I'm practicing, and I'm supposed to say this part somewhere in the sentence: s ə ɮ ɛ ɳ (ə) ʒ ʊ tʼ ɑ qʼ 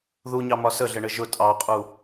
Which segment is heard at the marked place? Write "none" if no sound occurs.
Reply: ə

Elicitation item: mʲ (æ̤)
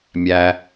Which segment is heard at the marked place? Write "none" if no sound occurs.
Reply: æ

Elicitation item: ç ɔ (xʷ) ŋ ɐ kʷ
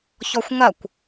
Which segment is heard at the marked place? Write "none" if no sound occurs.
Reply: xʷ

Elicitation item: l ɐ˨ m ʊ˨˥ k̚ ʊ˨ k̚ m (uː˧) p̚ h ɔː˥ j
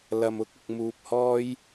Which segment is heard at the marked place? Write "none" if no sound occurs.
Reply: uː˧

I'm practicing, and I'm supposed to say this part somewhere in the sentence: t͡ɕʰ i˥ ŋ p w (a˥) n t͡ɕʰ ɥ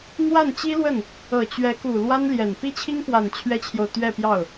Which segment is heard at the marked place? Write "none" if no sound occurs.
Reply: a˨˩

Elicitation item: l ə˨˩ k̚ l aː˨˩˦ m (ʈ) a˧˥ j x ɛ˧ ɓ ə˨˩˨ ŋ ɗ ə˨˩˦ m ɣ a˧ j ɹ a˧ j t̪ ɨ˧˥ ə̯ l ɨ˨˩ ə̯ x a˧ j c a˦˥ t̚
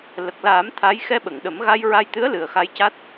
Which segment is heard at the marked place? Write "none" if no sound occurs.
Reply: t̪ʰ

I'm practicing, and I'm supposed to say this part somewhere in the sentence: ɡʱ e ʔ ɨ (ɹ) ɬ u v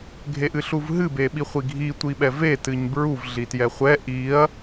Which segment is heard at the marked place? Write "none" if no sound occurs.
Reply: none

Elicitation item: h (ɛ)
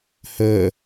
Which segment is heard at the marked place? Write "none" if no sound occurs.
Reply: ə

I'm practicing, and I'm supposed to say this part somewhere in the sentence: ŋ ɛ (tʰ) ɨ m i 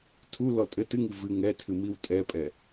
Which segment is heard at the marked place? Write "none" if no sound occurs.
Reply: tʰ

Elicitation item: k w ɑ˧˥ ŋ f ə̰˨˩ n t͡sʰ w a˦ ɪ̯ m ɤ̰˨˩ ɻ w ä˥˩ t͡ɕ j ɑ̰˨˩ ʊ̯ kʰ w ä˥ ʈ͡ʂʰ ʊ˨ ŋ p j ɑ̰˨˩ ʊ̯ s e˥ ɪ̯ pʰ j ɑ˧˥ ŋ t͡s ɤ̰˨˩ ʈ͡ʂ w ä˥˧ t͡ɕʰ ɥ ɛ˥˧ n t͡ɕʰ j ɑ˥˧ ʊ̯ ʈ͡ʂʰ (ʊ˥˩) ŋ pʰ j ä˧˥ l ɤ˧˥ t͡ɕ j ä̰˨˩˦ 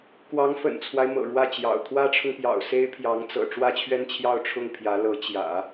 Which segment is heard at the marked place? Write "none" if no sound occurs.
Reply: ʊ˥˩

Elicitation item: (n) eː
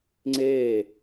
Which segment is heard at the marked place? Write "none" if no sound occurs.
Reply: ŋ͡ǀ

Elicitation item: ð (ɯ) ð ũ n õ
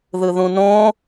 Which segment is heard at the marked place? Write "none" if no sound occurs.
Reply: ɯ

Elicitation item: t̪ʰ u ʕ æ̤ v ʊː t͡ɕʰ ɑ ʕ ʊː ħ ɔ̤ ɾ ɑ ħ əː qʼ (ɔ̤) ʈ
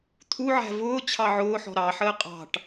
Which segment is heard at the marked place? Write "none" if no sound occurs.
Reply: ɑ̤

